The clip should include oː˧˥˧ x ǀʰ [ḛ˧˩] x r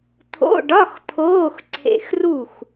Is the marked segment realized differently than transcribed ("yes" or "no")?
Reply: no